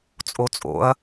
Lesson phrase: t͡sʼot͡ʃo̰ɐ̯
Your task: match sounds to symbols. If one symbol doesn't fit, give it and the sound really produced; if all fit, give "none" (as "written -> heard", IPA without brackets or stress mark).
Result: t͡ʃ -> t͡sʼ